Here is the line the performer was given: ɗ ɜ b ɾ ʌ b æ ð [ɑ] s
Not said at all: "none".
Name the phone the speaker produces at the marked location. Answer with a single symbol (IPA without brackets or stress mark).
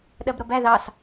ɑ